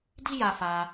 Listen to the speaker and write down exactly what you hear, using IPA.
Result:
d i˦ j a˧ f a˧

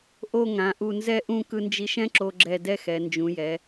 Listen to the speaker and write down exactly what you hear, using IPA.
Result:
ʔ o˧˩ ŋ ã˩˧ ʔ u˧˩ n z ɛ˥˧ ʔ ũ˥˧ k ɯ˧ n d͡ʒ i˧ ʃ ɛ̃˥ ǁ o˧ ɡ͡ǁ ɛ˧˩ d ɛ˥˧ x ɛ˩˧ n d͡ʒ ũ˩˧ j ɛ˩˧

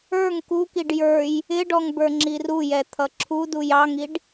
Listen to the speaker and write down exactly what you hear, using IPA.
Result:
ə˞ ŋ k u k i ɖ j ə˞ j | ɪ ɖ ɔ ŋ b ə˞ ŋ͡ǁ i r u j ɛ t̪ʰ ʌ ǁʰ u d u j ɑ ŋ i ɖ

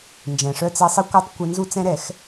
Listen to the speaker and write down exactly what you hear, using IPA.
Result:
n d͡ʒ ɛ̃˩ ʂ œ˧ t͡s ɛ˧ sˤ ə˧˥ kʷ œ˧˥ tˤ kʷ ɪ˧ n z u˧ t͡s ɛ̃˧ ɾ ɛ˧˩˧ x

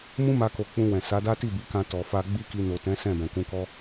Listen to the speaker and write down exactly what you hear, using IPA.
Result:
m ũ˦ m a˧ k o˨ k͡p ũ˧ w ɛ̃˨ s a˨˦ d a˦ t i˦˨ b i˨˦ k ã˧ t ɔ˨ f a˧ ɡ͡b i˦ k i˧ n o˨ t ɛ̃˨˦ s ɛ̃˦˨ b ɛ̃˨ k ũ˧ k ɔ˦

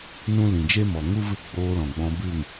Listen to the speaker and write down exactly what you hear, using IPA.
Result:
n ũ˦ l ĩ˨ d͡ʒ e˦ m ɔ˨ ŋ u˦ v ɨ˦˨ ɡ͡b oː˧ l ɔ̃˨ ɡ͡b ɔ̃˧ b ɨ˦˨ ŋ

